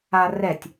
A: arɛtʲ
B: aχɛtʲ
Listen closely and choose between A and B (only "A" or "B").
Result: A